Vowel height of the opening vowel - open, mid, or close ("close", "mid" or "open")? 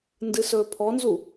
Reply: close